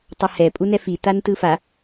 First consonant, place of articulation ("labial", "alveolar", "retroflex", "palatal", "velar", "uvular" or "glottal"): alveolar